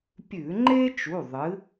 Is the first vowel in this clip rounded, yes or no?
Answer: yes